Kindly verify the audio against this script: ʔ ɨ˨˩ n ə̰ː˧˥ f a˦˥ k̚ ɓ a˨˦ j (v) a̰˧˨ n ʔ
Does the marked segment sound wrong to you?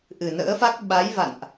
no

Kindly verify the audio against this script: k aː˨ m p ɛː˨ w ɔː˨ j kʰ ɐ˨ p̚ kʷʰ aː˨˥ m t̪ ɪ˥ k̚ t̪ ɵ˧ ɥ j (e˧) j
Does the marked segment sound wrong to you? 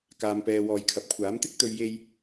no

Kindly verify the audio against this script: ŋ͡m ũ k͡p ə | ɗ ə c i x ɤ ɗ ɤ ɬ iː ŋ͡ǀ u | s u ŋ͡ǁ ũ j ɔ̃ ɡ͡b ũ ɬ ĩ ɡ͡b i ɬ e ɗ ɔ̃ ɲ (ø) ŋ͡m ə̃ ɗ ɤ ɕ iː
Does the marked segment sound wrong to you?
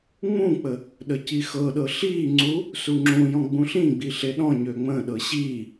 no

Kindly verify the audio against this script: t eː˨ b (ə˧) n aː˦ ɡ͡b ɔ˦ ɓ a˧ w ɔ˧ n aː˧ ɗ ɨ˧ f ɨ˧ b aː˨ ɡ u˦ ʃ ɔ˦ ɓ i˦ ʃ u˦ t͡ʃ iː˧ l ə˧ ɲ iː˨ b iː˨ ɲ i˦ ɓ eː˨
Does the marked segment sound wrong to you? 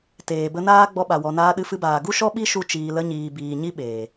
no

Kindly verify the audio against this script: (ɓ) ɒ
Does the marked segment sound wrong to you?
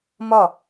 yes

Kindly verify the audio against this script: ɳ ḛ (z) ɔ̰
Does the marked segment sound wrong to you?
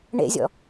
yes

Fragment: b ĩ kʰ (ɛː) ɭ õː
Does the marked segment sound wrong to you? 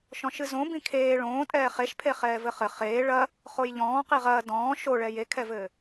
yes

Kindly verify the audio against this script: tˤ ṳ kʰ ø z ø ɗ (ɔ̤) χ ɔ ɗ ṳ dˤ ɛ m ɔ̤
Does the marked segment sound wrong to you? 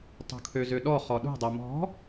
yes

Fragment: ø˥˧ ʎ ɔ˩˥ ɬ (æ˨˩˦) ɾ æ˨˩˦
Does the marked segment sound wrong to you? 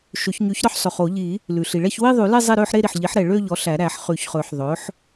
no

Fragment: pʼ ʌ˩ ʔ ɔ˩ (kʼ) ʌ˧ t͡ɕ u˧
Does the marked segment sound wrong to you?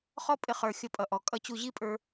no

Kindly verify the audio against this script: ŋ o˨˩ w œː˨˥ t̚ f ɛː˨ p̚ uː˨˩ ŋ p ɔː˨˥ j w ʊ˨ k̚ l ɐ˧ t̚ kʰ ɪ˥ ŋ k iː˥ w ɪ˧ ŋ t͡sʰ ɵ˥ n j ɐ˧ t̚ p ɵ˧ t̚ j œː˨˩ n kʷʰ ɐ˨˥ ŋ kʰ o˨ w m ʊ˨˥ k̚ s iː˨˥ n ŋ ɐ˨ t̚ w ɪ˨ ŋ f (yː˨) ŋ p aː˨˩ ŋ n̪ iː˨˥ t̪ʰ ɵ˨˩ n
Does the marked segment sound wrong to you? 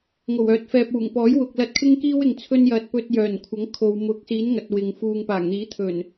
yes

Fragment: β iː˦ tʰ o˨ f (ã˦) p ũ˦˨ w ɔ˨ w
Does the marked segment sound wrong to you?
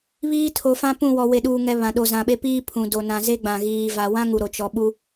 no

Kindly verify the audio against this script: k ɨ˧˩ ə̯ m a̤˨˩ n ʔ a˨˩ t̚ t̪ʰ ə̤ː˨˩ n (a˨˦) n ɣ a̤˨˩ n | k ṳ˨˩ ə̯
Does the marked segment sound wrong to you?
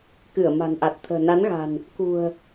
no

